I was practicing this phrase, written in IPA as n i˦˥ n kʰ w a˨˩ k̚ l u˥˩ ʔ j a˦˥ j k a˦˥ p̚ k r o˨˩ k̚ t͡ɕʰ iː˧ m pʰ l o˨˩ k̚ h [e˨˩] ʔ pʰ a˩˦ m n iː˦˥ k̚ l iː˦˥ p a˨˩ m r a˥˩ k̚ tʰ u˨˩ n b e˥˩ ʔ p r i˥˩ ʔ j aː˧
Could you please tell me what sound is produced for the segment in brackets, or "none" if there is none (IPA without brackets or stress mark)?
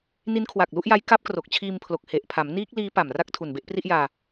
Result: e˨˩